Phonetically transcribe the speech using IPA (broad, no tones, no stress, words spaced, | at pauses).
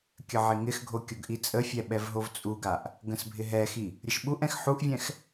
kʲəʕɪŋɪxɡʱo kʲoɡʔit͡sʼəfʲɛ ɓɛvɦovt͡sʼuɡaʔ | ɡə̃sbʱɪɦɛxi | ɾʲəʃɓuʔɛ̃x ħuʔvʲɛ̃x